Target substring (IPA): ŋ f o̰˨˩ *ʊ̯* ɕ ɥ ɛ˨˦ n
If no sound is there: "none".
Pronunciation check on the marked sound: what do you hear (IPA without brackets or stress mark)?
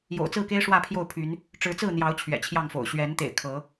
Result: ʊ̯